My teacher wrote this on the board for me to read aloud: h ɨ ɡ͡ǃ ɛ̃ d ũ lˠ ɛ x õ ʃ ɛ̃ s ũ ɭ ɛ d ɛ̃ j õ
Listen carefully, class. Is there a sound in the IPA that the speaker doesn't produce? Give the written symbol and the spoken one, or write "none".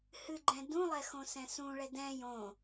ʃ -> s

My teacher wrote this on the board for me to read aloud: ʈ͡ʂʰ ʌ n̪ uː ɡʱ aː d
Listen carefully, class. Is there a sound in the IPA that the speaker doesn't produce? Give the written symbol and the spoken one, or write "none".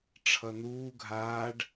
d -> ɖ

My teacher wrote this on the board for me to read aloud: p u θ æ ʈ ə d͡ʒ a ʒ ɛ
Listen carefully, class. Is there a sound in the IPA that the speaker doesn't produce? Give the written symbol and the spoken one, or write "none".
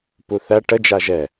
none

